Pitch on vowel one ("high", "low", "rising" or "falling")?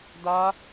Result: high